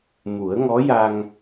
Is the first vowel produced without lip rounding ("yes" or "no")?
no